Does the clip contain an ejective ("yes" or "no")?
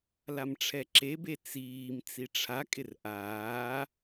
yes